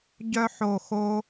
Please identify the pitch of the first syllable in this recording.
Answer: high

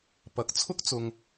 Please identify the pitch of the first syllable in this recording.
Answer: rising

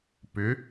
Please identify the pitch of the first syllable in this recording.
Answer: rising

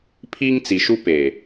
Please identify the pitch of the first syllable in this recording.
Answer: high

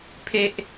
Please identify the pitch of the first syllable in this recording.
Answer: high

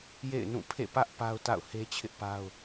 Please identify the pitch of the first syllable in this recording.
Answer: falling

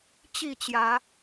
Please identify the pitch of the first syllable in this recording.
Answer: falling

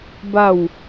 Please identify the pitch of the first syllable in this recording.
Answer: falling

